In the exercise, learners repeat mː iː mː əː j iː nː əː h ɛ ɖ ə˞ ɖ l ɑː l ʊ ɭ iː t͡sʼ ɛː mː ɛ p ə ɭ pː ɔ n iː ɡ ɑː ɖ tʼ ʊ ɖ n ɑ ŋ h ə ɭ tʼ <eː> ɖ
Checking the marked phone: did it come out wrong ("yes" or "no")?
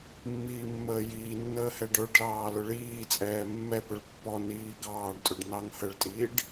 yes